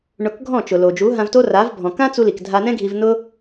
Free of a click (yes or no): yes